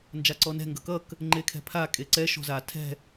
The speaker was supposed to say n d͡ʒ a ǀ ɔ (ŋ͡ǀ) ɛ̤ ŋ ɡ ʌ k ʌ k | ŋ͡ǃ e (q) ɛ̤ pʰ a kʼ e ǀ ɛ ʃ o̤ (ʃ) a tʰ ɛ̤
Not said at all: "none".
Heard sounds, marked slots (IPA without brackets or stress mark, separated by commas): n, kʰ, z